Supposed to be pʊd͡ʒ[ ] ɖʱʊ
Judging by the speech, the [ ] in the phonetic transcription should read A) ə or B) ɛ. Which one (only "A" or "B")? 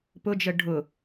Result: A